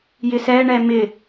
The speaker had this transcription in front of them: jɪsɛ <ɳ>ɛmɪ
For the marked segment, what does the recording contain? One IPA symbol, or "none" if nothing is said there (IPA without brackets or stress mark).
ɳ